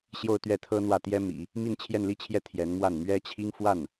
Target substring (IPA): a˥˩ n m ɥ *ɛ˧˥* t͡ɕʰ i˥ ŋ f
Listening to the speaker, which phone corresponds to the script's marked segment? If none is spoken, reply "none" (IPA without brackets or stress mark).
ɛ˥